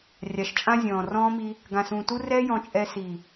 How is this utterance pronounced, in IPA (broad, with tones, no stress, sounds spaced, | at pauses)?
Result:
rʲ a˨ ʃ t͡ʃʼ ã˦ zʲ ɔ̃ː˨ r ɔ̃ː˦ m i˦ | ɡ ã˨ s ũː˨ t u˦ r ɛː˦ j ɔ̃˦ t͡ʃʼ ɛ˦ s i˨